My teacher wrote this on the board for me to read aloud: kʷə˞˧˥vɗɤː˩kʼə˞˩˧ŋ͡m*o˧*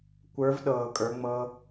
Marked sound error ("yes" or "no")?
yes